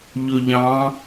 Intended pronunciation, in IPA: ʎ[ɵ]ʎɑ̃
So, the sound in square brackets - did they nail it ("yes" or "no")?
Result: yes